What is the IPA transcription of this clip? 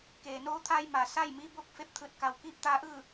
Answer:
keː˩noː˧t̪ʰaː˧j ma˩sa˥˨j miː˧bo˥˨k̚fe˧˩p̚ t̪ʰɯː˧˩t̚ka˩wkiː˥˨p̚ t̪aː˧˥ʔɯː˥˨

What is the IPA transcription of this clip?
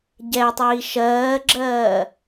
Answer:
ɟɛtˤiː ʃɜːɡ͡ǁɜː

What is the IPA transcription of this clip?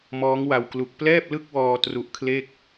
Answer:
mɔː˦˥ŋwa˧w klu˨˩k̚plɛː˥˩p̚lɯ˥˩k̚wɔː˧ tru˦˥ʔkʰle˥˩k̚

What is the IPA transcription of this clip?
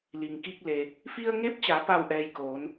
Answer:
li˩ŋki˧k̚le˩ | fi˧ə̯ŋe˧˥p̚t͡ɕa˩˧ pa˥˨wʔɛː˧jkoː˩˧n

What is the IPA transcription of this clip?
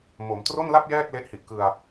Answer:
mo˩˦mtro˥˩nla˥˩p̚ jɛː˥˩k̚ le˦˥ʔhi˨˩ʔkɯ˧a̯

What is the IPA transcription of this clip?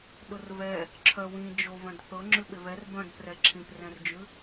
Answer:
ɗʊrβɛ | ǁʰœwĩ d͡ʒo βœ̃dθɤ ŋ͡ǁʉɓeβɛr bœ̃d prɛǁʰĩp rɛ̃rd͡ʒʉ

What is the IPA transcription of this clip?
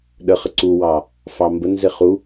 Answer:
ɗəχə ǀuwɑ | fɑmbənze χu

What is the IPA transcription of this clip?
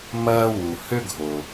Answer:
mɐː˥wu˩ hʏ˥ɡʱo˩

